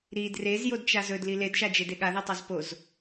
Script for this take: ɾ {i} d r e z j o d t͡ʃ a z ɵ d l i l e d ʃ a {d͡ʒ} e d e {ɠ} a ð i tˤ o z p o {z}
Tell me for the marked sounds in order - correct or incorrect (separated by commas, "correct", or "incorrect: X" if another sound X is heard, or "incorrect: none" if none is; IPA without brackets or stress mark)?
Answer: correct, correct, correct, correct